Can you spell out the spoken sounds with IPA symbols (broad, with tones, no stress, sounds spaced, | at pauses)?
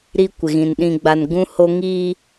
ɾ i˦ kʷ ɪ˨ ɣ ĩ˨ n ɗ ĩ˨ ɡ͡b a˨ n ɡ ũ˦ h o˦ ŋ iː˦